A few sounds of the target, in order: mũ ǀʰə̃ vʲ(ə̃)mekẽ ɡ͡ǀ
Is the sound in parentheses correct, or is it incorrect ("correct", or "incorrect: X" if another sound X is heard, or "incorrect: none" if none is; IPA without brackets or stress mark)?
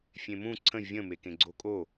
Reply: correct